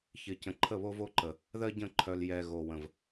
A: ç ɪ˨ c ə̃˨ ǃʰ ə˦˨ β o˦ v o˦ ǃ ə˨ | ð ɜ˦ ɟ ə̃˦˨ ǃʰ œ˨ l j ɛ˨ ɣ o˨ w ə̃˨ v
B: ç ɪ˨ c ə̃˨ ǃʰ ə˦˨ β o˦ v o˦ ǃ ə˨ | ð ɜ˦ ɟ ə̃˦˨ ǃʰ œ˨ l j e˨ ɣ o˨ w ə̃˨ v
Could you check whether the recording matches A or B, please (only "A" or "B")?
A